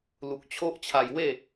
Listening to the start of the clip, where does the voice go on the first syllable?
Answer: low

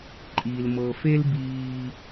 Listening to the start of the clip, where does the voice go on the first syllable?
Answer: low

